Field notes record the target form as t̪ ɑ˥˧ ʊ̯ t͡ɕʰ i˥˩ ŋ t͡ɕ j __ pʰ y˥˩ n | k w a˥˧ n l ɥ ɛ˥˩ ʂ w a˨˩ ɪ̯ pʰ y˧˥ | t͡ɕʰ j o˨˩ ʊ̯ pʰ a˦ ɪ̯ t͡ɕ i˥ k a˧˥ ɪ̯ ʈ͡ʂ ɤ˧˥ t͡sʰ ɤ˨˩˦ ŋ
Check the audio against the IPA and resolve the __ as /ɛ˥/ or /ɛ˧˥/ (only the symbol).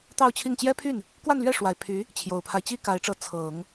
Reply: ɛ˥